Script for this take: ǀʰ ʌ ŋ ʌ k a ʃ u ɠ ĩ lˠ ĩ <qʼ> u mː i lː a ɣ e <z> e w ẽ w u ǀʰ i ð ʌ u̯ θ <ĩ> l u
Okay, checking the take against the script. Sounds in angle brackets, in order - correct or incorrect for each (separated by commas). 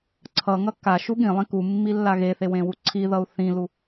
incorrect, incorrect, correct